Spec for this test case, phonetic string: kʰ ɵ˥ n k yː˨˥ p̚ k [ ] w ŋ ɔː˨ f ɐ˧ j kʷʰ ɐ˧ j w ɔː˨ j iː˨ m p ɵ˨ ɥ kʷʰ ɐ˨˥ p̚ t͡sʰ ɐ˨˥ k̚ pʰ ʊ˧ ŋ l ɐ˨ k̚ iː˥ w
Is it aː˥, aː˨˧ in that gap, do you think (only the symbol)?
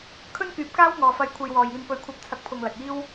aː˥